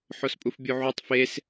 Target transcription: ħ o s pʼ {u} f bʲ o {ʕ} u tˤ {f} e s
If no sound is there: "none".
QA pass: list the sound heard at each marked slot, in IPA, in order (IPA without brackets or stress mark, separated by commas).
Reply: u, ʕ, f